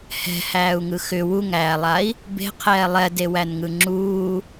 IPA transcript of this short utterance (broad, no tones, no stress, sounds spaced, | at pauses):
h ɛ̤ h æː u̯ ŋ ɯ x ʏ w u ŋ æː lˠ a i̯ | b e̤ qʰ ɛː lˠ ɛ d e w æ n ŋ ɯ ŋ͡ǁ uː